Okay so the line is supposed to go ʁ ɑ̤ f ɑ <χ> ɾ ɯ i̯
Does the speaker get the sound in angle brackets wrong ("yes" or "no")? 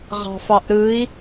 yes